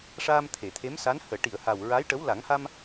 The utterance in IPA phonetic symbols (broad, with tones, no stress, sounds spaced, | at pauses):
ʂ aː˧ m t̪ʰ e˨˩˨ t̪ʰ e˧˥ m s a˧˥ n h əː˨˩˨ ʈ i˨˩˨ ə̯ h a˨˩ w ɹ a˧˥ j ʈ ə˧˥ w l a˨˩˦ ŋ h a˧ m